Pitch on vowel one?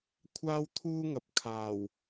high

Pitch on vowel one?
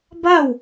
falling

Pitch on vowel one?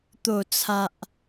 low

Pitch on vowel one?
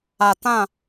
low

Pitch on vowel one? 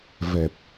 low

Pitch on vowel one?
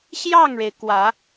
falling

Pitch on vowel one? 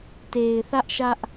low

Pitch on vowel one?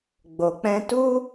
low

